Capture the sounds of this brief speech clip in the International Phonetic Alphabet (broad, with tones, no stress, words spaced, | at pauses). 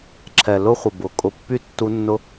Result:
ǁʰɛ˨ lʊ˧χʷə˨ bʊ˨ kʼʊ˧pːy˦ tːu˧ nːʊ˦